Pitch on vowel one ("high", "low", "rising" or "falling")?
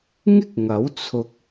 high